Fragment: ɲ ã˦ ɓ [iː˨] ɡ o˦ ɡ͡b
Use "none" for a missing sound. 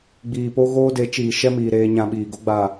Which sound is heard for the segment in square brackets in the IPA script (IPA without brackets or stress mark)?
iː˨